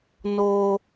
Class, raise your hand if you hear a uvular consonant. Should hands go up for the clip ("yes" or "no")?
no